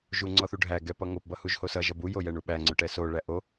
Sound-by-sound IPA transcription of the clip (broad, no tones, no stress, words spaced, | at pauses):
ʒuŋ͡ǀɔθuɖʱæ ɡɛpʌŋop bʌhuʒhosʌ ʒʌbu jojɛɳuɓæ ŋ͡ǀʊʈɛso ɭæʔo